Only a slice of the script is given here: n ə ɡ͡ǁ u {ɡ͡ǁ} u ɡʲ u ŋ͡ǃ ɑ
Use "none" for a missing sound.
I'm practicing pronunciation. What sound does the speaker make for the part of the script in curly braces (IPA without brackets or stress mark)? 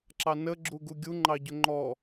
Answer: ɡ